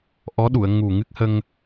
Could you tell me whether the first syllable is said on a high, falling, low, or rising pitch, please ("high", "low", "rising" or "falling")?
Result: rising